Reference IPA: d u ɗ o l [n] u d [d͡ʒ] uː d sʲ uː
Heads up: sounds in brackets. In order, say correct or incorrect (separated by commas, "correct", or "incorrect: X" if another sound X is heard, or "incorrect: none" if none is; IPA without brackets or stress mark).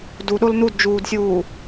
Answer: correct, correct